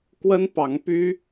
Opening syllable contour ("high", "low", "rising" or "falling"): high